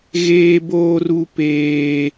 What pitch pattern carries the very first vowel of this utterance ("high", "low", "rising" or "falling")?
high